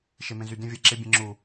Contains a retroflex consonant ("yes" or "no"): no